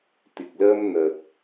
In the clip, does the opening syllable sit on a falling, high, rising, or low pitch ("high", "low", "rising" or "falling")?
low